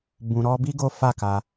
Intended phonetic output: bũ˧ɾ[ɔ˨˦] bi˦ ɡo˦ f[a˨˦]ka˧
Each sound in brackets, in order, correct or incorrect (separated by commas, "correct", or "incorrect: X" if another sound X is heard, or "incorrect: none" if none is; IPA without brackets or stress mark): incorrect: ɔ˦, incorrect: a˦˨